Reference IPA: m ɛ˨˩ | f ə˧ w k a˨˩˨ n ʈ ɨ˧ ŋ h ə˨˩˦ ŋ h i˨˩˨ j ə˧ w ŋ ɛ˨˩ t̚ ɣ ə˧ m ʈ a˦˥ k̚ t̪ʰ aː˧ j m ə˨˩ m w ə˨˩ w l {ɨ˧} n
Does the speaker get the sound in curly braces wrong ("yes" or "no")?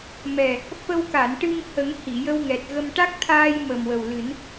yes